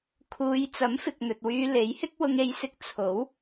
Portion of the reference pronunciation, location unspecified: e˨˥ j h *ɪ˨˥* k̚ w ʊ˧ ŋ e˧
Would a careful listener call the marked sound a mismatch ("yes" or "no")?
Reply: yes